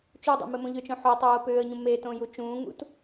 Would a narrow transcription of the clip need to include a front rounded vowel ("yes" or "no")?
yes